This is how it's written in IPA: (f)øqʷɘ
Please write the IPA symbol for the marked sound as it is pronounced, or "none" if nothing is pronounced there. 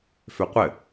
f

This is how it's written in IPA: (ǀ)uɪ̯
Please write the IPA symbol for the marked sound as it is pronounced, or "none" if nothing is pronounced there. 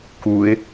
k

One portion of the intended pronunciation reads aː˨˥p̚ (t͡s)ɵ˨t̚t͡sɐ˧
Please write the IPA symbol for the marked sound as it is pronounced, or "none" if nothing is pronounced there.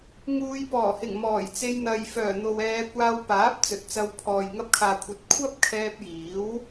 t͡s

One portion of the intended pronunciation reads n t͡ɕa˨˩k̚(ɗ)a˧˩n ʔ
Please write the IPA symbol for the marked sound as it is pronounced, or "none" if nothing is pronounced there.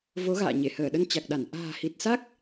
ɗ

